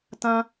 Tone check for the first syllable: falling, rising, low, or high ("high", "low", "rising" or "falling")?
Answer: high